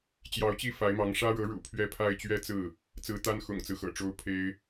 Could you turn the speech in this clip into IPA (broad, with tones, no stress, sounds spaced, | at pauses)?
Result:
t͡ɕ j ɑ˧˥ ʊ̯ t͡ɕ i˥˩ f a˧˥ ɪ̯ m ɑ˧˥ ŋ ʂ ä˥ ɻ ɤ˧˥ ɻ ṵ˨˩ pʰ ɥ ɛ˥˧ pʰ a˥˧ ɪ̯ t͡ɕ ɥ ɛ˥˧ t͡s ɹ̩˥˩ | t͡s ɹ̩˧˥ t̪ a˥ n x ʊ̰˨˩ ŋ t͡s ɹ̩˦ x ɤ̰˨˩ ʈ͡ʂ o˥ ʊ̯ pʰ e˥ ɪ̯